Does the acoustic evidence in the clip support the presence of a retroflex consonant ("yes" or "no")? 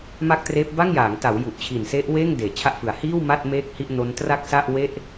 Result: no